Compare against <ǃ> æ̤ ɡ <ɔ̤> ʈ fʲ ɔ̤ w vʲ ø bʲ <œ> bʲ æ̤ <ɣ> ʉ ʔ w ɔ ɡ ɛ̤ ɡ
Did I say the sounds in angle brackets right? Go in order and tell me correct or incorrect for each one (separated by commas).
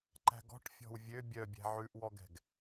correct, correct, correct, incorrect